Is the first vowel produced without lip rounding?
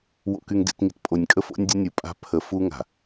no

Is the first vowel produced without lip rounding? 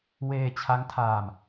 yes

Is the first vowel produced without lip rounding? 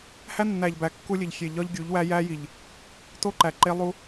yes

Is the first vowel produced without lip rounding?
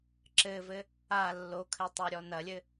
yes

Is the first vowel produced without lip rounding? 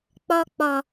no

